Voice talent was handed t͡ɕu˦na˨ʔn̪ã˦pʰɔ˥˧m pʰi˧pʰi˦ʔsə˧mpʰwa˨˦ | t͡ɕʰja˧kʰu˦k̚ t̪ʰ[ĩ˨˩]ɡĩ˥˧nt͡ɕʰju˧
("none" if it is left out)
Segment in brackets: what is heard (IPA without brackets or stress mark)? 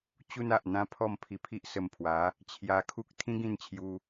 ĩ˦